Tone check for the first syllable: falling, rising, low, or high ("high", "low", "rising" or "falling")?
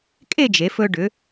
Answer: falling